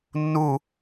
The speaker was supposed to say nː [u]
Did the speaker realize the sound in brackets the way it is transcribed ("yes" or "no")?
yes